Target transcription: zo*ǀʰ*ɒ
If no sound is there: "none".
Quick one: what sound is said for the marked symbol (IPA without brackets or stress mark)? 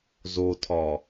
tʰ